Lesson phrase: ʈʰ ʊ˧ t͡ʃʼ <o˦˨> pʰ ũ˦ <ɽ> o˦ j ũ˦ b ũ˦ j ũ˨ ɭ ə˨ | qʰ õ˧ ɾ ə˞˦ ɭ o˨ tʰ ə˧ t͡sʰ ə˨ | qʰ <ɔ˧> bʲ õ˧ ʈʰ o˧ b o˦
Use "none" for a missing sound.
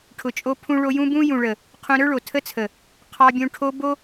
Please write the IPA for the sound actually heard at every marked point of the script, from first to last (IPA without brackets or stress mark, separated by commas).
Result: o˦, ɭ, ɑ˧